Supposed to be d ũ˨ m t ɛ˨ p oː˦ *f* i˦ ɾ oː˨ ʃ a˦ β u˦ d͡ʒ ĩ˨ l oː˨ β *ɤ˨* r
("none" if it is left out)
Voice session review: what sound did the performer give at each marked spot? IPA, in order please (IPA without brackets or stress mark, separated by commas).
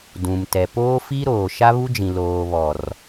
f, ɔ˨